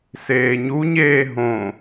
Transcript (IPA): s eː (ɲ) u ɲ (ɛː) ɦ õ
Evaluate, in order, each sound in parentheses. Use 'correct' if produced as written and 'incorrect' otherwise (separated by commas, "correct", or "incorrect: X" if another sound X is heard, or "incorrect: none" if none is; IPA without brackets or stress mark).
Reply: correct, incorrect: eː